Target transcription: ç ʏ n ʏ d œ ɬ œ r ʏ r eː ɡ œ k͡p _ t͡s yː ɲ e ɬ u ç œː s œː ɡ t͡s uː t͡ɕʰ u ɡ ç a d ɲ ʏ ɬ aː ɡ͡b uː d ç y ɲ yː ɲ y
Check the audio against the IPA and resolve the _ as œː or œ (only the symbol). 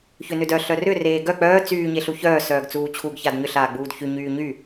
œː